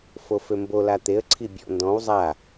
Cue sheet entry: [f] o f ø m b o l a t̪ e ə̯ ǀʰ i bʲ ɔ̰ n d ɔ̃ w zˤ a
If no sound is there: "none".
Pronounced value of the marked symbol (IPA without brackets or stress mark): f